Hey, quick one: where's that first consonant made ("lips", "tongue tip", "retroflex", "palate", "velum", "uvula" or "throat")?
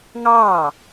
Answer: velum